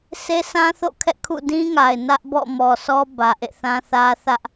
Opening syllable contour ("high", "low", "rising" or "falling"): high